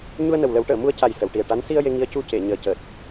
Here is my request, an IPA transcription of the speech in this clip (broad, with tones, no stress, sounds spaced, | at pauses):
ɲ u˧ ə̯ n ə˨˩ w l ə˨˩˦ w ʈ əː˨˩˨ m u˧ ə̯ c a˨˩ j s ə˨˩˨ w ʈ i˨˩ ə̯ ʈ a˧˥ n s i˧ ə̯ j e˧ ŋ i˧˥ ə̯ c u˧ c e˨˩˨ ɲ əː˨˩ c əː˨˩ t̚